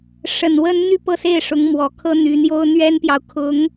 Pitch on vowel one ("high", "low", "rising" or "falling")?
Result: low